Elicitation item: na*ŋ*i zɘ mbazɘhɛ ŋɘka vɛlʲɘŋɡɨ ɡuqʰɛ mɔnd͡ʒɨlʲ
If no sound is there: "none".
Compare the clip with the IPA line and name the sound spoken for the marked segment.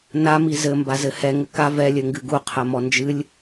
m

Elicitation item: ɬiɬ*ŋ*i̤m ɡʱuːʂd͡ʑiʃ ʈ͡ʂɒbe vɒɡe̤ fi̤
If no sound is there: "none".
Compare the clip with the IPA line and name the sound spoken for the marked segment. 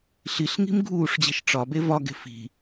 ŋ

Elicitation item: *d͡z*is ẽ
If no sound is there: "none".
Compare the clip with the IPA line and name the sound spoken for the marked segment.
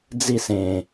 d͡z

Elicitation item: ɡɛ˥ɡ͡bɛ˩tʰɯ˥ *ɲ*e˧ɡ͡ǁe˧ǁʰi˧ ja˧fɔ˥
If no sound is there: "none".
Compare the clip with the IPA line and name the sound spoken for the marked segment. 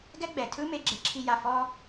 m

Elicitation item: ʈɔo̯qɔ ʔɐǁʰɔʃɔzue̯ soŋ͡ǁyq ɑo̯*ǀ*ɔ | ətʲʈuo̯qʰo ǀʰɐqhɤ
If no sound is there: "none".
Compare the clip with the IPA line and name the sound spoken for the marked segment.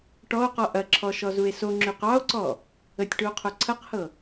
ǀ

